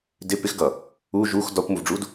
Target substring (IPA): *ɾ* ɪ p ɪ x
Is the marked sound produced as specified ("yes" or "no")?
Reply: no